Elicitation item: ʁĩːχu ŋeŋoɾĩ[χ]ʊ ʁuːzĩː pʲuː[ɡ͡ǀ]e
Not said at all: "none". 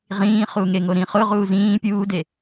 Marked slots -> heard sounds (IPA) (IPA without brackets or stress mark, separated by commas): χ, d